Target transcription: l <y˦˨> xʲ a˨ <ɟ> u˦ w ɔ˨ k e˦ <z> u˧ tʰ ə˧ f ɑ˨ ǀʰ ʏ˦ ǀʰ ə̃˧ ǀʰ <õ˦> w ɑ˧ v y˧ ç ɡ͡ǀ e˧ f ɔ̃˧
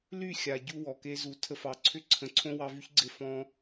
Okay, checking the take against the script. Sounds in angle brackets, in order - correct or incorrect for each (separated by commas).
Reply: correct, correct, correct, correct